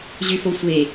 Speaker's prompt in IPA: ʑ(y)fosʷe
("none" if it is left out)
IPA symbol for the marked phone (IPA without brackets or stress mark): y